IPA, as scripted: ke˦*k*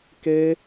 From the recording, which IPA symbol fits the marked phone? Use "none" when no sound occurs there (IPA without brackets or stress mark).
none